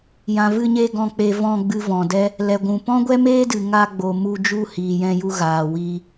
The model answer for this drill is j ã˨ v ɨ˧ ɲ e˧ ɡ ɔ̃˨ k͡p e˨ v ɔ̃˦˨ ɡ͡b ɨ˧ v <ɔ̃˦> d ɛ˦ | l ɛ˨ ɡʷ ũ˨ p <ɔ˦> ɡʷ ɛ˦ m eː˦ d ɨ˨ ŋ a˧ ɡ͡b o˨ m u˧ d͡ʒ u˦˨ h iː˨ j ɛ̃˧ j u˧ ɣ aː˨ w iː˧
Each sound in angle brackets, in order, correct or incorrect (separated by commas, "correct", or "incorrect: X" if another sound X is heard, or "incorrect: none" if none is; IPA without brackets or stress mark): incorrect: ɔ̃˨, incorrect: ɔ̃˦